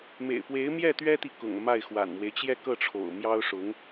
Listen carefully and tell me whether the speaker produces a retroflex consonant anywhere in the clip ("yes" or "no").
yes